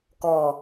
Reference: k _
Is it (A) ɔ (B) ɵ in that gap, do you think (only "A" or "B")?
A